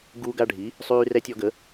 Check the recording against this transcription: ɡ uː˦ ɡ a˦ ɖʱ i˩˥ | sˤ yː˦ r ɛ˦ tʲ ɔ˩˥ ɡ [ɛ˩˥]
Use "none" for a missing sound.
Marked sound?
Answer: ə˩˥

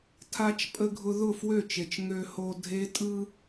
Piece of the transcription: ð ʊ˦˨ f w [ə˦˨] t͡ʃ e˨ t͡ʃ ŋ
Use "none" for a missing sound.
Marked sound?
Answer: ø˦˨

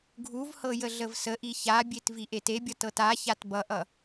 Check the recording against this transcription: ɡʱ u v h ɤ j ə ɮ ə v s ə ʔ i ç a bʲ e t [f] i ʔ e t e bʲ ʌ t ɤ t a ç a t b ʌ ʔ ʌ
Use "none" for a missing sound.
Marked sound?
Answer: v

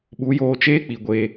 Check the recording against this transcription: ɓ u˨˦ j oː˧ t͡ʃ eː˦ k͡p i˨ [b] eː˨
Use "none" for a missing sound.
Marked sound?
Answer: ɡʷ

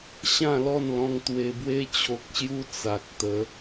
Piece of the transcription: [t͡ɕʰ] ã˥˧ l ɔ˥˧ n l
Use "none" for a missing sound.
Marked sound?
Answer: ɕ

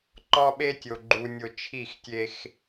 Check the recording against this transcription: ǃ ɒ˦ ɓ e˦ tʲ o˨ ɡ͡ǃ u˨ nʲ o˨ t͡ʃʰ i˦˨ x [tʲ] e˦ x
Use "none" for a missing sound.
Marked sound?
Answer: tʲ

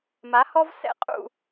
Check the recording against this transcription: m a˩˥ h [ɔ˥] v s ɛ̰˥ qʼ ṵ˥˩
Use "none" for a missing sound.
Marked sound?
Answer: ɔ˥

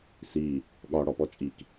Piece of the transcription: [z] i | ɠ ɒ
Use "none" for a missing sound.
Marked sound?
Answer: s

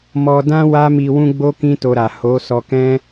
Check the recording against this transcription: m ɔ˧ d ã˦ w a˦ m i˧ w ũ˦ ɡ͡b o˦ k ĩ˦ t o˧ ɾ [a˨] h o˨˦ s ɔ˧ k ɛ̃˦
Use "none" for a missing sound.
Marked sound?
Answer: a˨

